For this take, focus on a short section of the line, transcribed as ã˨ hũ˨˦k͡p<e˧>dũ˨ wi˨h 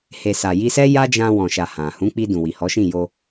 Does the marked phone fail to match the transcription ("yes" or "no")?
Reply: yes